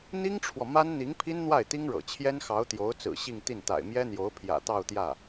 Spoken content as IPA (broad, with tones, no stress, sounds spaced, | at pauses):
n̪ i˥ ŋ ʈ͡ʂʰ w ɔ˨ m a˥ n n̪ i˧˥ ŋ pʰ i˥ n n̪ w a˥˩ ɪ̯ t̪ i˥ ŋ ɻ ɤ̰˨˩ t͡ɕʰ j ɛ˥ n x ɑ˧˥ ʊ̯ t̪ j o˧˥ ʊ̯ t͡s ɹ̩˨˩ ɕ i˥˧ ŋ t̪ i˥˩ n t̪ a̰˨˩ ɪ̯ m j ɛ˥ n̪ j o˧˥ ʊ̯ pʰ j ä̰˨˩ t̪ ɑ˥˧ ʊ̯ t̪ j ä˥˩